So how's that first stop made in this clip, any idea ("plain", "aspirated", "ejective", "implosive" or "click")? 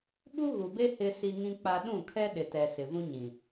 implosive